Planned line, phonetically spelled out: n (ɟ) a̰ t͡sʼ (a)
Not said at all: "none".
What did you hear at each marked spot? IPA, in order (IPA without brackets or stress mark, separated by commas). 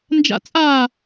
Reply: d͡ʒ, a